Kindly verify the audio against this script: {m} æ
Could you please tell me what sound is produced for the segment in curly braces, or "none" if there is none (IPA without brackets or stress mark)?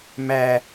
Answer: m